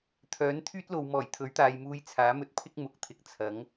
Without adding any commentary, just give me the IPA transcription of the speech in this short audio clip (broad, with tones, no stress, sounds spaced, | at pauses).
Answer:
t̪ʰ œː˨˥ n t̪ʰ yː˥ t̚ l o˨ w m ɔː˨˩ j t̪ʰ ɵ˨˥ ɥ t̪ aː˨ j m uː˧ j t͡sʰ aː˨˥ m ɵ˧ t̚ pʰ ɪ˥ k̚ m ʊ˨˥ k̚ t̪ʰ ɪ˨ k̚ t͡sʰ ɐ˨˥ ŋ